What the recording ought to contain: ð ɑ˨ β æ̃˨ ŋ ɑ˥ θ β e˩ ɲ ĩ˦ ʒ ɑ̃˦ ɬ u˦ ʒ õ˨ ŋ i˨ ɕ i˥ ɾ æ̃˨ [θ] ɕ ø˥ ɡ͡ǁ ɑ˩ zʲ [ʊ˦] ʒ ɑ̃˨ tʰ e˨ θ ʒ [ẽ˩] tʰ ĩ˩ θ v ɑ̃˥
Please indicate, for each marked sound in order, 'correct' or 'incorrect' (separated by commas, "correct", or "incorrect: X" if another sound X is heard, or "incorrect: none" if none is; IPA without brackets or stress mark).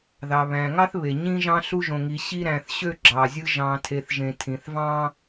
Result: correct, incorrect: ɯ˦, correct